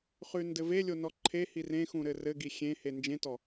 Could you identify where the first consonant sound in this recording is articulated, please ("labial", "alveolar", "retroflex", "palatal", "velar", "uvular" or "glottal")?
uvular